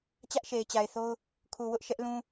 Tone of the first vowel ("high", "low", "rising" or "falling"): high